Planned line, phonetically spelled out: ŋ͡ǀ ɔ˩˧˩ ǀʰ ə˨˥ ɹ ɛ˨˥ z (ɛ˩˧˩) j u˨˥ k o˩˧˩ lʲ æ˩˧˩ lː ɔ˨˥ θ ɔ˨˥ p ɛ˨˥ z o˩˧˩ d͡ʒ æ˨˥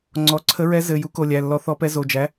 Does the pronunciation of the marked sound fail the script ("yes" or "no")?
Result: yes